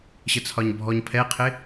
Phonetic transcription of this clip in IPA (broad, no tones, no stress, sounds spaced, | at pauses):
ɕ ə t͡sʰ ɒ ɲ bʱ ɔ ɲ pʰ ɛ qʰ ɪ